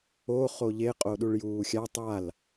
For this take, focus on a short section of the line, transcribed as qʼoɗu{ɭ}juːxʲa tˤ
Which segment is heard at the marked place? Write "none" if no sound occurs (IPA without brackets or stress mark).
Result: ɭ